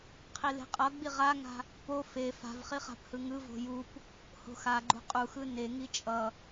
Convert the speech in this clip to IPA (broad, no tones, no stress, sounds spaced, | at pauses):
qʰ i l e̤ qʼ ʌ ɡ͡b i ʁ a ŋ a̤ | p o f e f a̤ v χ i χ a̤ p h ɯ ŋ ɯ v o̤ j u p | h o̤ x a ɡ͡ǃ ṳ qʼ u x ɯ n e ŋ i t͡ʃʼ ʌ